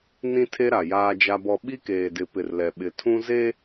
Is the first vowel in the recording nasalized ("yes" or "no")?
yes